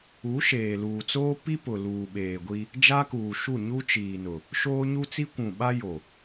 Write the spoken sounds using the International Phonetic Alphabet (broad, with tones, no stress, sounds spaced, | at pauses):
u˨˦ ʃ eː˨ l uː˨ t͡s oː˦ p i˦ p ʊ˨ l uː˨ ɓ eː˨ ɡʷ i˦ | d͡ʒ a˦ k uː˨ ʃ u˦˨ ɲ u˦ t͡ʃ iː˨ n ʊ˨ | ʃ oː˦ ɲ u˦ t͡s i˦ kʷ ũ˨ ɓ a˦ j o˨